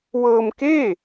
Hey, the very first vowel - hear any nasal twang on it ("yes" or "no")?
no